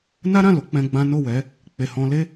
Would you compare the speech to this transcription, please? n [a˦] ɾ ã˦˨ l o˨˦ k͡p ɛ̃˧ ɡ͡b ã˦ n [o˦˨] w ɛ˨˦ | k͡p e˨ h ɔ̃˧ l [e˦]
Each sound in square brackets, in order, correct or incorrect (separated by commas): correct, correct, correct